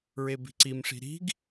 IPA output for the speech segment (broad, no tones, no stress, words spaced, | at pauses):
ɹebi̤ǀimʂi̤ ɾi̤ɡ